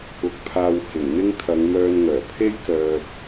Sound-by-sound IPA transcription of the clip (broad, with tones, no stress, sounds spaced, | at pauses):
ʊ˧ k̚ pʰ aː˧ w h ɪ˨˩ ŋ n̪ ɪ˥ ŋ t̪ʰ ɐ˨˧ ŋ m œː˧ n ŋ œː˨˩ pʰ e˥ j k œː˨ p̚